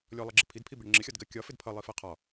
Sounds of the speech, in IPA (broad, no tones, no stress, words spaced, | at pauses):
lʲɔlˠʌɡ͡ǁɪ pʰidpʰibɪɽɛ ŋ͡ǁɪxʲɒdɡɜ kʲɒfɪd pʰʌlˠifɜ qʰɒ